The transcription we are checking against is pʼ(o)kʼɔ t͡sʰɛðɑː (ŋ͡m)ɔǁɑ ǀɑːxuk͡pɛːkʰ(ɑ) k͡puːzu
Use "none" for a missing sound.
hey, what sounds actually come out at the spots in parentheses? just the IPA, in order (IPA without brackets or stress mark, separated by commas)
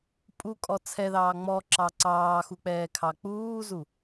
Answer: u, ŋ͡m, ɑ